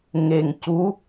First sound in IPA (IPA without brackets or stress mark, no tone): ŋ